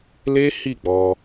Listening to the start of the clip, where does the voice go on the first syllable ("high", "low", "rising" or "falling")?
high